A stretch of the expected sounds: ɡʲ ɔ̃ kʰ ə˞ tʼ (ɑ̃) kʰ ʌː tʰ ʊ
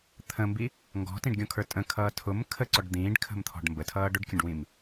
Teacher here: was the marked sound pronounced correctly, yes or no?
no